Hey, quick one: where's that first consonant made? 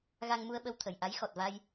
velum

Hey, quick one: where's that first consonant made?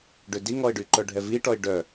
retroflex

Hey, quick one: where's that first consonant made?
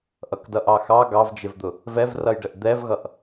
throat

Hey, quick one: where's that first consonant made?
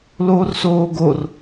tongue tip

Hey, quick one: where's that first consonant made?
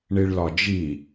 retroflex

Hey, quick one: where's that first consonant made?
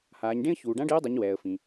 throat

